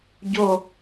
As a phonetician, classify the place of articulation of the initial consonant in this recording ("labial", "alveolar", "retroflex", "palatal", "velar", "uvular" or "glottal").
palatal